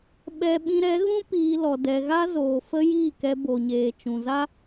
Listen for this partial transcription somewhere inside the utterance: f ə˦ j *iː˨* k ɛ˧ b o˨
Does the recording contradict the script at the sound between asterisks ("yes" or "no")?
yes